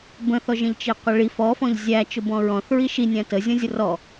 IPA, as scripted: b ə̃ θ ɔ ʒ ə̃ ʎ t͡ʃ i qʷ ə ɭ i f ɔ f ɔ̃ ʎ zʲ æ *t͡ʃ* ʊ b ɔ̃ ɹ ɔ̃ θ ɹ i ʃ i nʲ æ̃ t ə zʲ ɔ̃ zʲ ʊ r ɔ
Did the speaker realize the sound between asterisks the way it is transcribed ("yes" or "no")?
yes